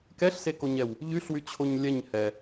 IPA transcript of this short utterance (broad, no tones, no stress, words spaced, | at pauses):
kɛɬsekoɲɛw | ʎyɬwyt͡ɕʰoɲ lʲɛɲ hɛ